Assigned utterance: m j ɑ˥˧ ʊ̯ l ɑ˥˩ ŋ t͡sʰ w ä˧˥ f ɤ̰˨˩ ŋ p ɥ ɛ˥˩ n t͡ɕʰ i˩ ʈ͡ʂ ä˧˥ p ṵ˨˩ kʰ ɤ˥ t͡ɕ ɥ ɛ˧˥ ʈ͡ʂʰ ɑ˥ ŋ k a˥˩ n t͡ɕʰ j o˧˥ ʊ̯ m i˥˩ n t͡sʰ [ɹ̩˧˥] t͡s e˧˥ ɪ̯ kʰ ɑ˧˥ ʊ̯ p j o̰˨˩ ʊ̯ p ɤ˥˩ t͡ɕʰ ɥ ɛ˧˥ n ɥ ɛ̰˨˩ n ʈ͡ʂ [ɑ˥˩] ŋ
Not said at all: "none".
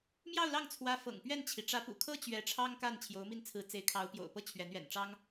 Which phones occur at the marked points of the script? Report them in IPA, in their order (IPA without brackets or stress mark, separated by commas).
ɹ̩˧˥, ɑ˥